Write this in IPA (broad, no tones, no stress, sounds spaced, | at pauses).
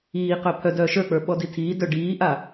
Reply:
iː q œ pʰ œ d œː ʃ ə˞ k͡p ə˞ ɓ ɔ d i tʰ iː d œ ɖ iː ʔ a